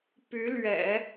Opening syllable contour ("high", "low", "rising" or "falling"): rising